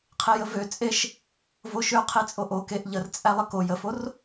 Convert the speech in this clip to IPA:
qʰ i j ə v ø t͡sʼ e ʃ | v o ʃ ø qʰ i t͡sʼ o ʔ o k e ʔ ʎ ə r t͡sʼ æ lˠ ə k o j ə f o r

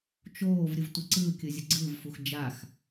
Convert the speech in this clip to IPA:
t͡ʃ oː v ɾʲ ɯ v tʷ i ǀ ɯː kʲ ɯ zʲ ə ɡ͡ǀ ɯː v f u x d͡ʒ a x

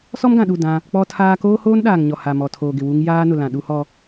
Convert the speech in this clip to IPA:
s ɔ˦ m ɡ ã˨ ɗ u˦˨ d ã˦ | k͡p ɔ˦ tʰ aː˦ k oː˦ h oː˦ n ɗ aː˨ ŋ ɲ ɔ˨ h a˨ m ɔ˨ tʰ oː˨ ɡ ɪ˨ w u˦ ŋ j aː˦ n ʊ˨ l ã˨ ɗ u˦ h ɔ˦

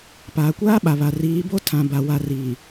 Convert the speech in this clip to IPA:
p aː˨ kʷ aː˦ ɓ a˨ β a˨ r iː˨˦ b o˦ tʰ ã˨ b a˨ w a˨ r iː˨

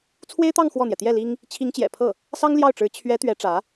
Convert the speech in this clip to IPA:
t͡sʰ w e˥ ɪ̯ t̪ ɑ˥˧ ŋ x w ɔ˥˩ n̪ j ɛ˩ t̪ j ɛ˥˩ l i˥ ŋ | t͡ɕʰ i˧˥ ŋ t͡ɕ j ɛ̰˨˩ pʰ ɤ˥˩ | s ɑ˥ ŋ l j ɑ˥˩ ʊ̯ ʈ͡ʂ ɻ̩˧˥ t͡ɕʰ ɥ ɛ˧˥ t̪ ɥ ɛ˧˥ ʈ͡ʂ ä˧˥

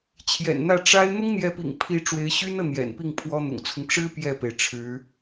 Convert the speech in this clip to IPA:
t͡ɕʰ j ɛ̰˨˩ n n̪ ä˥˩ ʈ͡ʂ a˥ ɪ̯ n̪ ʊ˥ ŋ n̪ j ɛ˧˥ p ḭ˨˩ ŋ pʰ i˧˥ ʈ͡ʂ w e˧˥ ɪ̯ ɕ y˥ n ɤ˨ n̪ j ɛ̰˨˩ n p i˥˩ ŋ pʰ w ɔ˥ n̪ ʊ̰˨˩ ŋ t͡sʰ ʊ˦ ŋ ʈ͡ʂ ɻ̩˥ p j ɛ˥˩ p e˩ ɪ̯ ʈ͡ʂʰ ɻ̩˧˥

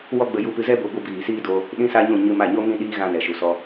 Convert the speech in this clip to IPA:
w ɔ˦ ɡ͡b ə˧ j u˧ p ɨ˧ z ɛ˦ b o˧ ɡʷ ɨ˧ b iː˨ s iː˦ d o˧ | ɗ ĩ˦ s a˦ ɲ ũ˦˨ ɲ ɨ˧ m a˦˨ ɲ o˦ ŋ ĩ˦ ɗ iː˦ ɣ ã˧ n ɛ˨ ʃ u˨ s ɔ˦

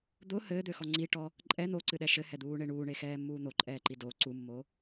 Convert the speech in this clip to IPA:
d̪ ʊ h ɘː d̪ ø x ɔ ŋ͡ǀ i ʈ ɔ | ǃʼ ɛ n̪ o ǀ ɨ ɗ ɛ ʃ ɘ h ɛ d̪ uː ɳ e ɳ uː ɳ e x ɛː mː uː n̪ o ǃʼ ɛː ǃ i d o ǀ u mː o

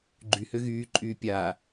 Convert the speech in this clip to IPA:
ɡ͡ǃ y h ø ɣ yː ǃʼ yː pʲ aː

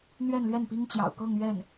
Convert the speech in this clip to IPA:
n̪ ɥ ɛ˥˧ n l ɥ ɛ˥˩ n p i˥ ŋ t͡ɕ j ɑ̰˨˩ ʊ̯ k ɤ˥˧ ŋ ɥ ɛ˥˩ n

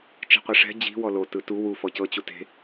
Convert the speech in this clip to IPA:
t͡ʃ i̤ qʷ ɛ ʂ ɛ̤ d͡ʑ i̤ w ɔ l o t ɯ t u w u f ɔ c ɤ t͡ɕ u t e̤

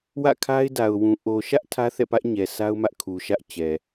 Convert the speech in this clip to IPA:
w ä̰˦˨ kʰ a˦ ɪ̯ d a˨ ʊ̯ w ũ˨ ʔ o˨ ʃ ä˦ ʔ tʰ ä˦ θ ɛ̰˦˨ p ä˦ ʔ ɲ ɛ˨ s a˦ ʊ̯ m ä˦ ʔ kʰ u˨ ʃ ä˦ ʔ t͡ɕ ɛ˨

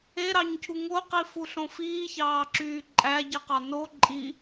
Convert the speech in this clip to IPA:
e ɾ ɑ ɲ cʰ u ŋ o q i f u ɬ õ f iː ç ɑː ǁ yː ǃʼ æ ɟ i q ɑ n o ǃʼ i

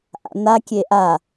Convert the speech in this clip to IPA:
ʔ a̰ n a kʲ e ʔ a

